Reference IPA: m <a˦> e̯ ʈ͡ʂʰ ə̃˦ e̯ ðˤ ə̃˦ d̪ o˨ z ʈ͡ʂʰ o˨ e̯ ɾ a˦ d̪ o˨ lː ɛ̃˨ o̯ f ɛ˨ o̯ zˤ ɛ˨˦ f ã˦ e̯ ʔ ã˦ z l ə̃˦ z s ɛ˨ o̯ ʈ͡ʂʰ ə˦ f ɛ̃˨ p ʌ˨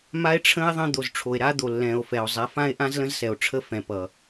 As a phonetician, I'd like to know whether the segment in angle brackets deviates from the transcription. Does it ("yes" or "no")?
no